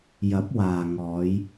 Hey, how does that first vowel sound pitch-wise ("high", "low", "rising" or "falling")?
rising